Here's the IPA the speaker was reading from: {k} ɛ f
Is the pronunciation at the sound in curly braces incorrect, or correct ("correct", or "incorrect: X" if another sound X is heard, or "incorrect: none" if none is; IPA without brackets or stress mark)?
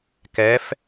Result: correct